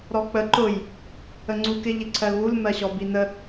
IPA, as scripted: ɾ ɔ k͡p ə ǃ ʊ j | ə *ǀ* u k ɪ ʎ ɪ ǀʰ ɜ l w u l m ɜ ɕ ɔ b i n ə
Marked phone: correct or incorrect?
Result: incorrect